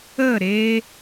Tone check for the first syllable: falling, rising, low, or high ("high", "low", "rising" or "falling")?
falling